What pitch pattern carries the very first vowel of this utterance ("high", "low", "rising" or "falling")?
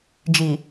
low